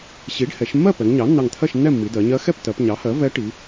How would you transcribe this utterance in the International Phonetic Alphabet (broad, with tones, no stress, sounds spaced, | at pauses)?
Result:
ɕ i˩˥ ɖ h ɛ˩˧ ʃ mː ɜ˥˨ p ɛ˩˧ ŋ ɲ ɑ˩˥ nː ɑ˧˩ ŋ t̪ʰ ɜ˥˨ ʃ nː ɛ˥˨ mː i˩˧ d ɜ˩˧ ɲ ɜ˧˥ x ɛ˥˨ p t ɜ˩˧ p ɲ ɑ˩˥ h ɜ˩˥ v ɛ˧˥ ʈ i˩˧